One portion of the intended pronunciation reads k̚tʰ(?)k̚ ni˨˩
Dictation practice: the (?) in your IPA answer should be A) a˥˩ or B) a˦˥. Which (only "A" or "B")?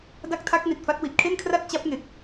B